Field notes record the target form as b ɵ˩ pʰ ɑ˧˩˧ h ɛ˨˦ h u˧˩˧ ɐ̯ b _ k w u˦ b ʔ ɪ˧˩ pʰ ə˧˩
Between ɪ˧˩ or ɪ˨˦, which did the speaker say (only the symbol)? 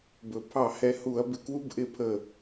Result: ɪ˨˦